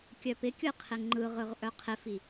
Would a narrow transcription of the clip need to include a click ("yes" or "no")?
yes